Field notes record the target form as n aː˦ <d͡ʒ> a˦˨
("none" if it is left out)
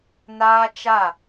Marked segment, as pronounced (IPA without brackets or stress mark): t͡ʃ